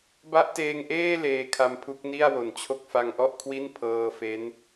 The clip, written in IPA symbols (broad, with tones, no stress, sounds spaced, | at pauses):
b a˦˥ ʔ t eː˧ ŋ ʔ eː˥˩ l eː˧ kʰ a˧ m pʰ u˦˥ k̚ n i˥˩ a̯ w o˨˩ n t͡ɕʰ o˥˩ k̚ f a˧ ŋ ʔ ɔ˥˩ ʔ kʰ w i˥˩ n pʰ ɤː˧ f e˦˥ n